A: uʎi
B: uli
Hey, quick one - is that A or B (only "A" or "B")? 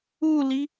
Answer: B